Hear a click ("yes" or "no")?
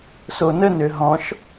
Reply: no